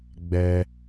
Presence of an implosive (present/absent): absent